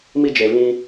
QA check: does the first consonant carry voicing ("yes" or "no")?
yes